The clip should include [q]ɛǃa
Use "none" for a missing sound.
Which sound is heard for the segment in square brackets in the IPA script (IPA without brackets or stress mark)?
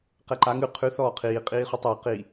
q